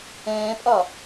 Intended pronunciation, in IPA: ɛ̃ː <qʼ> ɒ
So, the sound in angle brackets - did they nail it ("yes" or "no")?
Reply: no